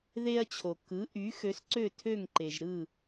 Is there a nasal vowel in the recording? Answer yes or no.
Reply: no